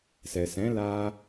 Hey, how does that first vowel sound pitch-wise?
low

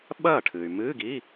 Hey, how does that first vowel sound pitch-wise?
falling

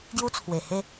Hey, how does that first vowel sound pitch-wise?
high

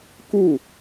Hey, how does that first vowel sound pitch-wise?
falling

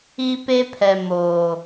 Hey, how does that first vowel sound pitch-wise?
high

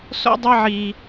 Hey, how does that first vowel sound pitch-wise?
high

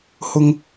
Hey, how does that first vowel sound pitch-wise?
high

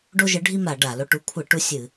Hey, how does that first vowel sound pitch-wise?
high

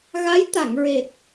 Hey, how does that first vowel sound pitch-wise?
rising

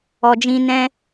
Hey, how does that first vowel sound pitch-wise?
low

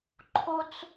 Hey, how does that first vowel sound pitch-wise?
high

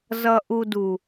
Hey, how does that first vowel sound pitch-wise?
low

